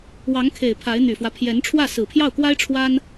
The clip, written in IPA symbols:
w ɑ˧˥ ŋ kʰ e˨˩ ɪ̯ pʰ a˧˥ ɪ̯ n̪ y˨˩ f w ä˦ pʰ j ɛ˧˥ n ʈ͡ʂʰ w ä˥˩ s ɹ̩˨˩ pʰ j ɑ˥˩ ʊ̯ k w a˥ ɪ̯ ʈ͡ʂʰ w a˥ n

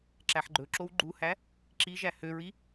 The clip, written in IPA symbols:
ǁ æ ħ ɡ͡ǃ ɵ ǁ o w ɡ͡ǃ u h æ | ǁ i ʒ æ h ø ɹ i

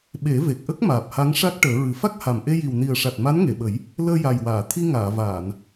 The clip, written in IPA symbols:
ɓ e˨˩˦ v e˨˩ k̚ ʔ ə˦˥ k̚ m aː˨˩ p̚ h a˧˥ ŋ ʂ a˦˥ k̚ ʈ əː˨˩˦ ɹ ɨ˨˩˦ f a˦˥ k̚ h a˨˩ m ʔ e˧ j i˨˩ w n i˨˩ ə̯ ʂ a˨˩ t̚ m a˧˥ n ŋ e˨˩˨ ɓ ə˨˩˦ j | l əː˧ j a˨˩ j w aː˨˩˨ t̪ʰ i˧ ŋ aː˨˩˨ v aː˨˩˨ n

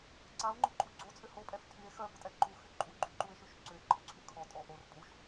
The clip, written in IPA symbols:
ǀ a o̯ ŋ͡ǃ ʊ ǃʼ u ɡ͡ǀ o t͡sʼ ʏ h o pʼ ɛ f tʰ y e̯ x œ p ʊ tʼ ɛ ǃ u x y ǃʼ u ɡ͡ǃ y ǃ u e̯ ʃ y ʃ ǀ ʏ e̯ ǃʼ ʊ ǀʰ y kʰ ɔ tʼ ɔ ʔ o r pʼ u ʃ

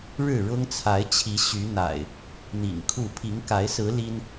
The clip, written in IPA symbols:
ɻ ɻ̩˥˨ ɻ ʊ˦ ŋ t͡sʰ a˨˦ ɪ̯ t͡ɕʰ i˨˦ ɕ y˨˦ n̪ a̰˨˩ ɪ̯ | n̪ ḭ˨˩ ŋ kʰ u˥˨ pʰ i˨˦ ŋ k a˨˦ ɪ̯ s ɹ̩˨˦ l i˦ n

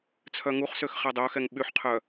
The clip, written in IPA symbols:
t͡sʰ œ ŋ u χ s ø x χ ɛ dˤ œ x ɛ ŋ ɓ y ħ qʰ œ

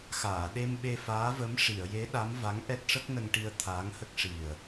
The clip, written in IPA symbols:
x aː˨˩˨ ɗ e˧ m ɓ e˧ f aː˧˥ v ə˧˥ m ʂ i˨˩˨ ə̯ j e˧˥ ɗ a˧˥ m v a˧˥ ŋ ʔ ɛ˦˥ t̚ ʂ ə˦˥ k̚ n ə˧ ŋ ʈ i˧ ə̯ t̪ʰ aː˧˥ ŋ h ə˦˥ k̚ ʂ i˨˩ ə̯

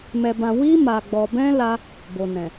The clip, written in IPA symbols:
m ɛ˧ b ã˧ w i˦ m a˧ ɡ͡b ɔ˧ b ɛ̃˦ l a˦ | b o˨ n ɛ̃˨

